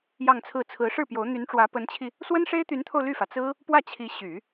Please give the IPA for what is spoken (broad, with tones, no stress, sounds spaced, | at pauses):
j ɑ˥˧ ŋ t͡sʰ ɹ̩˥˩ t͡sʰ ɹ̩˧˥ ʂ ɻ̩˥˩ p j o˧˥ ʊ̯ n̪ y˧˥ n ʈ͡ʂ w ä˧˥ p ə˧˥ n t͡ɕʰ i˧ | s w ə˥ n ʂ e˥ ɪ̯ t̪ y˧˥ n t̪ʰ o˧ ʊ̯ l y˥˩ f ä˩ t͡s ɹ̩˥ | p w ä˥˩ t͡ɕʰ i˧˥ ɕ y˨˩˦